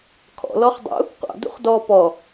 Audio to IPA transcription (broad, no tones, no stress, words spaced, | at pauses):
kʰɔ̰ lɔχdˤṵ | qʷɑ̰ dṵχdɔ pɔ